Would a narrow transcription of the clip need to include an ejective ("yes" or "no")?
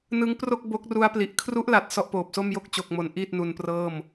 no